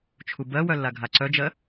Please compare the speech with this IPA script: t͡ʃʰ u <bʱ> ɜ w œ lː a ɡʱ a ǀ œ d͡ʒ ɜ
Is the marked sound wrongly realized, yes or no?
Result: yes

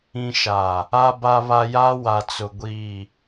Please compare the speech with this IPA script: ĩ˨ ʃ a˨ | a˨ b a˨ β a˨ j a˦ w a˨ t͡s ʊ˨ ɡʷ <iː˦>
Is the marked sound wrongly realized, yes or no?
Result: yes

